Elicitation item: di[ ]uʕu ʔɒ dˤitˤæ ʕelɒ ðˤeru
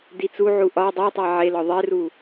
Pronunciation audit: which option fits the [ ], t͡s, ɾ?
t͡s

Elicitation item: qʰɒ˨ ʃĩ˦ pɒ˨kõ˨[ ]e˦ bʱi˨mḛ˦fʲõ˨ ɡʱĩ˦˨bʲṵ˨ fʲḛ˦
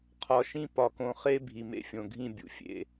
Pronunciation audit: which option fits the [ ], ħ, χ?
χ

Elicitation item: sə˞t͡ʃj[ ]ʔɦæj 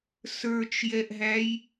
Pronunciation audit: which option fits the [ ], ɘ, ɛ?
ɛ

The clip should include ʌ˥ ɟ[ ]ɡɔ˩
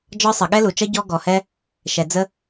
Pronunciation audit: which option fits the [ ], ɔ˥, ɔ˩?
ɔ˥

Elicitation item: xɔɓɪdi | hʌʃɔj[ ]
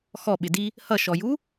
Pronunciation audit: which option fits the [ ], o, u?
u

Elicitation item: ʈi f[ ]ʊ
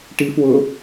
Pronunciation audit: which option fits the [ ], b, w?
w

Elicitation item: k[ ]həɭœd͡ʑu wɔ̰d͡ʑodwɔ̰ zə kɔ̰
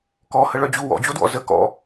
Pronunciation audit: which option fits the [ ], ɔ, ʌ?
ɔ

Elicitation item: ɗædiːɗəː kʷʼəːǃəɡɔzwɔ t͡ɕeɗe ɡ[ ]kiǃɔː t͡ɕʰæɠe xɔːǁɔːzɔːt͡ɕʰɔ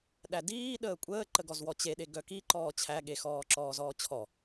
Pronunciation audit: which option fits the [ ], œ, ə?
œ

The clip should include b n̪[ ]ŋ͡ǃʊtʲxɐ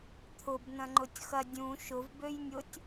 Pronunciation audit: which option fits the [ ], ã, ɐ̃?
ɐ̃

